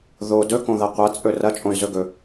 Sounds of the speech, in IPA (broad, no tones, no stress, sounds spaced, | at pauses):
ð o d ɵ k õ ð ɐ qʷ ɐ t͡sʼ ɵ r ɐ t͡ʃʼ õ y̯ z ɵ ɡ ɵ